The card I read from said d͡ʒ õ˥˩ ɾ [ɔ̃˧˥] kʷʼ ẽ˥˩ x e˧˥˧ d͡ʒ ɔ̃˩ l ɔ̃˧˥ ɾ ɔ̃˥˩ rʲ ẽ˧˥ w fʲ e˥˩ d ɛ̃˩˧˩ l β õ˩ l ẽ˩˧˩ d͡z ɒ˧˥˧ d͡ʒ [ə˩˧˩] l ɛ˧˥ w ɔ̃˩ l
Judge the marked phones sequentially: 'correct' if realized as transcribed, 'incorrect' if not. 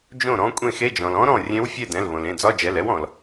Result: correct, incorrect: ɛ˩˧˩

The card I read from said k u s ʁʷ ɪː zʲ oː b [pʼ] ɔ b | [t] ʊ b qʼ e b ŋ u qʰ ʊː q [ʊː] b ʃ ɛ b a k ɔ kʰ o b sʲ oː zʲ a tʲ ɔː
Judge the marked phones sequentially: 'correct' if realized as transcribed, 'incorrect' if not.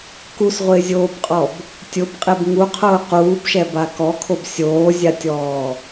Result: incorrect: qʼ, incorrect: tʲ, incorrect: uː

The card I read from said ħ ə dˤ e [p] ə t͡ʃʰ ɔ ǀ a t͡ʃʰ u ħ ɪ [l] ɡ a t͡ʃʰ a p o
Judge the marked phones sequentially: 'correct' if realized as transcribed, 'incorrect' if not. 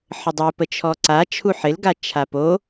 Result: correct, correct

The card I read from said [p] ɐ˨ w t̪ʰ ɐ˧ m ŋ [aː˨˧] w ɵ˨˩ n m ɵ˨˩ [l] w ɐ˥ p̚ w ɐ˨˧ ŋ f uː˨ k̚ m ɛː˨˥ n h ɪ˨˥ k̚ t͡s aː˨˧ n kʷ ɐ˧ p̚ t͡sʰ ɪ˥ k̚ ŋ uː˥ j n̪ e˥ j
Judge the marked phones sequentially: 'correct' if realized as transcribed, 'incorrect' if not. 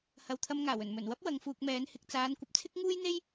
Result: incorrect: h, incorrect: aː˨˩, incorrect: n

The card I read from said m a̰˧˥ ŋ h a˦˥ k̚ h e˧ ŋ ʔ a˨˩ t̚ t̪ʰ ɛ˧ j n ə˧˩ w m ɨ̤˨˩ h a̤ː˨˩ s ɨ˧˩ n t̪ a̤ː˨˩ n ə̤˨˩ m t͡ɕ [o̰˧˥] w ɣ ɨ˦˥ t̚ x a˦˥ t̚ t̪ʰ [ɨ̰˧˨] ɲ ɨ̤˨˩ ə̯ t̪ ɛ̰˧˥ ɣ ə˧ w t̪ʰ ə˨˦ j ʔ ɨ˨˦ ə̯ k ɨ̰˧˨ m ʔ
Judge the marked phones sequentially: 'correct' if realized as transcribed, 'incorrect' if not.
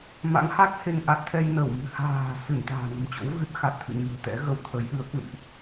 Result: correct, correct

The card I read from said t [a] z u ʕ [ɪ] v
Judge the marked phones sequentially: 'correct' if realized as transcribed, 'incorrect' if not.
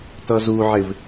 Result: incorrect: ʌ, correct

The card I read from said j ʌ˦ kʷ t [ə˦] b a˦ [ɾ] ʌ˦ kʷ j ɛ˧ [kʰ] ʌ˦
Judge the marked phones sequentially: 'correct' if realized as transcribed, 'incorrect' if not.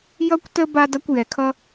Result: correct, incorrect: d, correct

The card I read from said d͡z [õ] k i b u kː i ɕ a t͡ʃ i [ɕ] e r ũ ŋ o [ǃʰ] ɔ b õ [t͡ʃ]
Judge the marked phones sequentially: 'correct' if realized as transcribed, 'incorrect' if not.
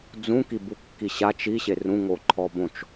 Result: incorrect: ũ, correct, correct, correct

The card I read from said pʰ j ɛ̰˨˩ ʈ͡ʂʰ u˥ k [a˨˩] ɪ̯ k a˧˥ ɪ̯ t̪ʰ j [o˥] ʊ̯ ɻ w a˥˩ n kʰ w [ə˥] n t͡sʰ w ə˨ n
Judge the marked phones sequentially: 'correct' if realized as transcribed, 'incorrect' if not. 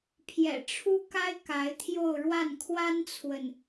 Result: incorrect: a˥, incorrect: o˥˧, incorrect: a˥

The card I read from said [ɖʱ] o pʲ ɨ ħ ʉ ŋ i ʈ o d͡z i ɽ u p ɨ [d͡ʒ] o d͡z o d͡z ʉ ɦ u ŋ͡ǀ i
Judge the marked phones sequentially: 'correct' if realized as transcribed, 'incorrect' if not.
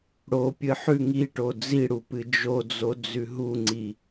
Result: incorrect: ɽ, correct

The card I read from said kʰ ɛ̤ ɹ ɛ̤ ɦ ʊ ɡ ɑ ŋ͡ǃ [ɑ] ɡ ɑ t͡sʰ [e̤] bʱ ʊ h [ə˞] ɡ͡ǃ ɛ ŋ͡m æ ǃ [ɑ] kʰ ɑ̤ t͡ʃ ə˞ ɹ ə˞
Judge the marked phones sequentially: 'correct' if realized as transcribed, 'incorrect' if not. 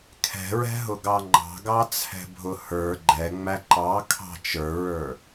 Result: incorrect: ɑ̤, incorrect: ɛ̤, correct, correct

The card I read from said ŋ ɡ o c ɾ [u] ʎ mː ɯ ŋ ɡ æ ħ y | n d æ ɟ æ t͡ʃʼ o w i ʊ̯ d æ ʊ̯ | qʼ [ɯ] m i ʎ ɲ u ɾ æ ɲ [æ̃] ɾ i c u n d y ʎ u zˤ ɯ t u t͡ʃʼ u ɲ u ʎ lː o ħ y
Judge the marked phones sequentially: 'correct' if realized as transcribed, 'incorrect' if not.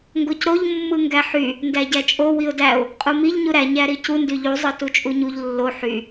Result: incorrect: o, incorrect: u, incorrect: æ

